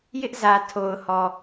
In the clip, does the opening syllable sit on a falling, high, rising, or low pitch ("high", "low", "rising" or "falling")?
high